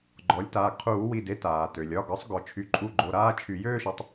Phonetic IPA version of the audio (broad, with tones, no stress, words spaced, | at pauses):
ɡ͡ǃɔ˩˥lʲtaː˩˧˩ɡ qʰuː˧˩˧wi˩˧˩de˥˧ taː˩tø˩lʲ ɒ˩˧˩ɡɒ˩˥sˤɡɔ˩ t͡ʃʰy˩˥ǃʼu˧˩ɡ͡ǃo˩˧˩ɾaː˥˧ t͡ʃʰy˧˩˧ jøː˥˧ʃɒ˩˥tˤ